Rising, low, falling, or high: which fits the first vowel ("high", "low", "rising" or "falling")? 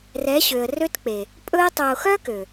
rising